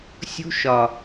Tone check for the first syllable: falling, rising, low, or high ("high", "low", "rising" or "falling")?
high